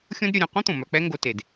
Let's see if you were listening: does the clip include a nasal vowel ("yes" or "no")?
yes